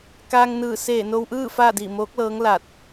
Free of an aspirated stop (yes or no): yes